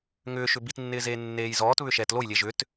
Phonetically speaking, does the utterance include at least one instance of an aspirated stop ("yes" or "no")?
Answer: no